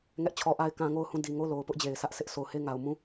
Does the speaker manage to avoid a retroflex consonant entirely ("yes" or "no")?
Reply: yes